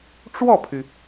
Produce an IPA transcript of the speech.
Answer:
ʈ͡ʂwɔ˥˩pʰy˩

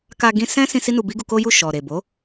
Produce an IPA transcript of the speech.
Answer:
ka˧ɡĩ˧ sɛ̃˦ sĩ˧ si˦nu˧bi˦ɡu˧ ko˦ju˦˨ ʃɔ˨ ɾe˨bo˨˦

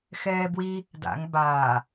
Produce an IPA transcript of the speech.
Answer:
xɛːbwi | da̰ŋ baː

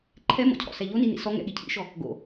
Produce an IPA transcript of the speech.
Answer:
ǃʰɛmɔ̰cʰɔ̰sɛ ʎoninḭ sɔŋɛ̰ɠi cʰḭʃɔ | ɡo̰

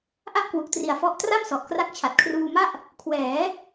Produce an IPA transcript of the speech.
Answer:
ʔa˥˩ʔkwu˨˩k̚tri˨˩a̯fɔ˦˥ʔ tra˥˩msɔ˨˩ʔkra˦˥k̚ t͡ɕʰa˨˩t̚kʰruː˧ma˥˩ʔ | kʰwɛː˩˦

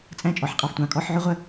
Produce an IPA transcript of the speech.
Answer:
t͡sʼæ̃˥˩t͡ʃʼɔ˩ħqʼɑ˧ftʷɑ̃˩ kʼɔ˧˥˧ħʕʊ˥ʁʷə˥

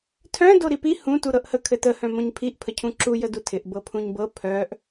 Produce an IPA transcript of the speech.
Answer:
tʰœ̃ doɾipi hũ tuɾɤʔhə kʰɘtə hœ̃mõɲpʰiʔ pʰəcʰũǁu jədutʰɪʔ bɤpʰũɲbɤ pʰœʔ

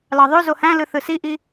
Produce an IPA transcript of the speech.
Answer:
lɑðˤø zohæ̃lɯ θɯsiʔi

